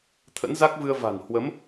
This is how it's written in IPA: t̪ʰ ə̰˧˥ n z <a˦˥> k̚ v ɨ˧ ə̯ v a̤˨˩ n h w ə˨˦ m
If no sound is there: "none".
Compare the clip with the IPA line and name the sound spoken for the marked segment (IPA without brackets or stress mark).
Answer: a˦˥